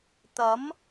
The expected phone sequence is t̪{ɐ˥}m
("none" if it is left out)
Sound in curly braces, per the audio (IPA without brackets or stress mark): ɐ˨˥